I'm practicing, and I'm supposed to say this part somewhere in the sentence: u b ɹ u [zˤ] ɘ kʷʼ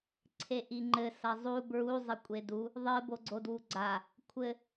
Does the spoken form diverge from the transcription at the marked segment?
no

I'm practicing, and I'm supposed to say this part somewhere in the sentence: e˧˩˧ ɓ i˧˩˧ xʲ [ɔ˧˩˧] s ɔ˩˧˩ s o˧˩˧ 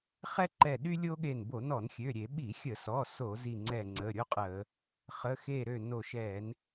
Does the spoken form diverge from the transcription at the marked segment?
yes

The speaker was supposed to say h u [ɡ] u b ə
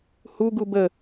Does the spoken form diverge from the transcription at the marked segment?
no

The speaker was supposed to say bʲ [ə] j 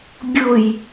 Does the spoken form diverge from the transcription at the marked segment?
yes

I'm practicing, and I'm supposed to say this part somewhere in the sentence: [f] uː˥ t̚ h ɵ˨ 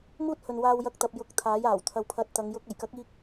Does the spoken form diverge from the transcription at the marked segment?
yes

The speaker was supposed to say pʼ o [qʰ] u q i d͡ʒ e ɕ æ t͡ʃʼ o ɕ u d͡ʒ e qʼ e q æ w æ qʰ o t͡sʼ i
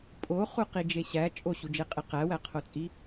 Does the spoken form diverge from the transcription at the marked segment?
yes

